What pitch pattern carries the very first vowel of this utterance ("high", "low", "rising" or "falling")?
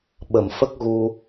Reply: low